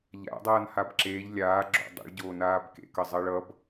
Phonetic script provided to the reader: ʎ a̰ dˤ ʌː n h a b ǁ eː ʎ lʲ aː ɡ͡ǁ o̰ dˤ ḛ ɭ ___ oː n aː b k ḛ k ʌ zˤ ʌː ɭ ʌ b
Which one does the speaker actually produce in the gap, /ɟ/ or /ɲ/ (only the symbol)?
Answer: ɟ